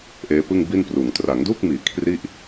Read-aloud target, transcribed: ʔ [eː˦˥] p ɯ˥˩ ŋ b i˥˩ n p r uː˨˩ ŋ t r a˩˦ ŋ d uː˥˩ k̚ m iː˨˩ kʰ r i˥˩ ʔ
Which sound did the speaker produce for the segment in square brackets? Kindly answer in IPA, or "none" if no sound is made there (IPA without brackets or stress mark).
eː˦˥